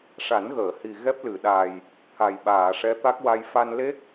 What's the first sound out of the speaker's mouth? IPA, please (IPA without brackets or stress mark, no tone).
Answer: ʂ